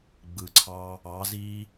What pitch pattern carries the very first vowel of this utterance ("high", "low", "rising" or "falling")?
low